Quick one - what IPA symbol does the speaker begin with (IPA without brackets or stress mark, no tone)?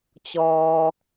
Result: t͡ɕ